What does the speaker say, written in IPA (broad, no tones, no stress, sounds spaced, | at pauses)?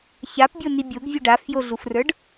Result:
ç a p bʲ o n i bʲ o ɡ vʲ u ɖ a f j o ɮ u f r ə˞ ɖ